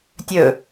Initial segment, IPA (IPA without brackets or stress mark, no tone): tʲ